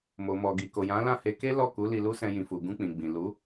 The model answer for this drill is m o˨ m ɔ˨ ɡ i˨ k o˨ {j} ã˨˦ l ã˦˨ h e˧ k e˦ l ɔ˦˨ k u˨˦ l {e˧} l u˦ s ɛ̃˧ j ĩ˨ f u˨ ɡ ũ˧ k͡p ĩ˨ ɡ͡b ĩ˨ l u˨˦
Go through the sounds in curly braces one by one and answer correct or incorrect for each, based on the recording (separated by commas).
correct, incorrect